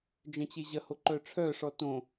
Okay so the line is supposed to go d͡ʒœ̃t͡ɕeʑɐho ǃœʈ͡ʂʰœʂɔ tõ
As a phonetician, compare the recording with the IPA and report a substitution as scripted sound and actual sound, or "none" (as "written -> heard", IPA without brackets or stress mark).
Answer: none